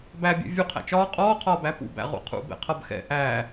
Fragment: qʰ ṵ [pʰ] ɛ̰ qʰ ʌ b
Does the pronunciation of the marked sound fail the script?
yes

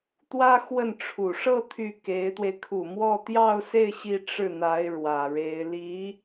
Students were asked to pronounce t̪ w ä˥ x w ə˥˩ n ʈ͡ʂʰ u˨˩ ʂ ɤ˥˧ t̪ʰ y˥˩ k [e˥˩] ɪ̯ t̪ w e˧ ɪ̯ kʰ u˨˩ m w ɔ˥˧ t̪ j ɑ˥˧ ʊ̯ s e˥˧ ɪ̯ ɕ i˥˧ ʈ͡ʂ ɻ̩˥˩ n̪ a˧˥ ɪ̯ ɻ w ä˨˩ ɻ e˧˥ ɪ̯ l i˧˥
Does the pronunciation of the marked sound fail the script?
yes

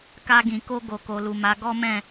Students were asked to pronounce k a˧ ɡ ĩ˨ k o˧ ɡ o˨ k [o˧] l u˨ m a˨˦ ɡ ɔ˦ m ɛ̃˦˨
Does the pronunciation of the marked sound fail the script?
yes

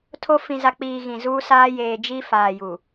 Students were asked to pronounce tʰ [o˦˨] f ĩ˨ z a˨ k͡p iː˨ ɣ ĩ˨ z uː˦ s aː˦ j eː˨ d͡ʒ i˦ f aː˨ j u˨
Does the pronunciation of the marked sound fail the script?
yes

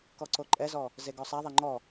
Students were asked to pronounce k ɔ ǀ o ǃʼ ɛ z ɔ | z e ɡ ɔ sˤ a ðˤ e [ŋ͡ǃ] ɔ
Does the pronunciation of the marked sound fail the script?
no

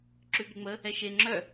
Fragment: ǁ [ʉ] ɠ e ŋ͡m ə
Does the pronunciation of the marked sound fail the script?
no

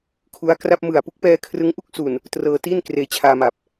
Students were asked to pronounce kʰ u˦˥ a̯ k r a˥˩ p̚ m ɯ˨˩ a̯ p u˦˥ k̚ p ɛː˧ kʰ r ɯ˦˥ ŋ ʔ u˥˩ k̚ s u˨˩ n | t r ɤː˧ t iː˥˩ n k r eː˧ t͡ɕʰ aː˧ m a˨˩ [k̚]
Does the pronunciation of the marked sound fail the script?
yes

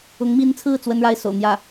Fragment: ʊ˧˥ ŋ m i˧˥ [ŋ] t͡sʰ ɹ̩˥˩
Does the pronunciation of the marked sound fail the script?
yes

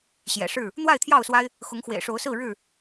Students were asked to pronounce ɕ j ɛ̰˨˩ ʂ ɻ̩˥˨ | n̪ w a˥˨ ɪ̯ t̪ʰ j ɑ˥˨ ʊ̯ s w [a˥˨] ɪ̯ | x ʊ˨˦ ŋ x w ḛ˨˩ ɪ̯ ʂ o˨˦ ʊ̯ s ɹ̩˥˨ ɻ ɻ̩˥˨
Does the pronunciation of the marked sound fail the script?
yes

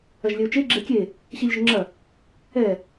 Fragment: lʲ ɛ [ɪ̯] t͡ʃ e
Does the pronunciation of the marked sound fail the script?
yes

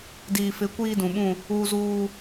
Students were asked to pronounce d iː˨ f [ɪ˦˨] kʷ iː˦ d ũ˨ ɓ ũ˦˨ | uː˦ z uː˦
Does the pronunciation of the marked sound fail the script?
yes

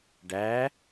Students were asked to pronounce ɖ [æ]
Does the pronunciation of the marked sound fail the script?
no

